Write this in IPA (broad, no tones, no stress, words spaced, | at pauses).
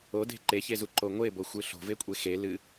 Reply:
ode̤ ǃeçezuǃo ŋʷeboxʷɨ ɬo̤vekʷʼe xe lɨ